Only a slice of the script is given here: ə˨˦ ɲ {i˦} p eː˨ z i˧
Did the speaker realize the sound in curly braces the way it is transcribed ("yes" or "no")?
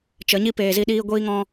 yes